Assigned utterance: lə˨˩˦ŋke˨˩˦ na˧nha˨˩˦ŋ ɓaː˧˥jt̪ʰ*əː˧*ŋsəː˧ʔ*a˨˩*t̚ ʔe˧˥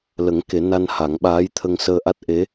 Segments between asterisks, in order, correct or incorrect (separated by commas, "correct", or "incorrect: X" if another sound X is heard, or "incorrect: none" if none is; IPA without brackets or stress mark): incorrect: ə˧, incorrect: a˦˥